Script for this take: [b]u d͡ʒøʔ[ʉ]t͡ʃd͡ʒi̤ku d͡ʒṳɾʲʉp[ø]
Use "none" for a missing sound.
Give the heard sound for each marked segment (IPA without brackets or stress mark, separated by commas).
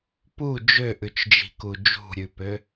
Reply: p, ʉ, ø